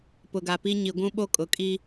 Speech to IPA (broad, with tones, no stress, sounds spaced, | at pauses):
p ʊ˨ ɡ a˨ p i˦ ɲ i˨ ɡʷ ũ˦ ɓ o˦ kʼ ʊ˨ kʼ i˦